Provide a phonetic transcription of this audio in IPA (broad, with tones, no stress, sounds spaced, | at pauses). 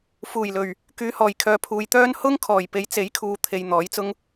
f uː˨˩ j l ɵ˨˩ ɥ | k yː˨˧ h ɔː˨˩ j kʰ œː˨ pʰ uː˨ j t̪ œː˥ n h ʊ˥ ŋ kʰ ɔː˨˩ j p e˨˥ j t͡s e˨˥ j kʰ uː˨ t̪ʰ e˨ j n̪ ɔː˨˥ j t͡s ʊ˥ ŋ